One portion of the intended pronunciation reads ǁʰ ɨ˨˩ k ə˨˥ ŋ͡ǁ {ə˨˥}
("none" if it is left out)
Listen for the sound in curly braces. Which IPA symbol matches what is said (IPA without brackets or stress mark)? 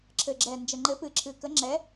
ɛ˨˥